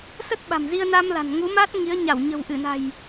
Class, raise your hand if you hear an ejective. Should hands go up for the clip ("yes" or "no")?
no